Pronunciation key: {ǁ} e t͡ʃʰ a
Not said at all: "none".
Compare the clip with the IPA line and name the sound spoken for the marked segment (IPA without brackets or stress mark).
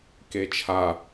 k